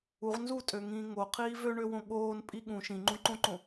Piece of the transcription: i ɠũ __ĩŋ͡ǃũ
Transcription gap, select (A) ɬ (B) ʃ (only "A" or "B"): B